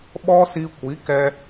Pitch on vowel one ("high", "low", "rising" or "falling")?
high